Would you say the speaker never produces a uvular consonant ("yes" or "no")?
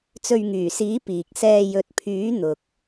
yes